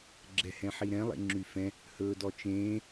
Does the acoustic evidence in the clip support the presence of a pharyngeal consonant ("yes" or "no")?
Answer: yes